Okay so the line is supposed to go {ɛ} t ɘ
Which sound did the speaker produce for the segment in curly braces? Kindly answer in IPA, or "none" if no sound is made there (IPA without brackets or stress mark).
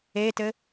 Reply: e